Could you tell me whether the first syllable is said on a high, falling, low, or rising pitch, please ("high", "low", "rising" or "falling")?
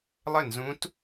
falling